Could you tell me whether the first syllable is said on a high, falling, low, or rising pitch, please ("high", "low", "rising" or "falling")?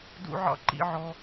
high